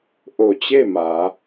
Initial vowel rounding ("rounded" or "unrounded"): rounded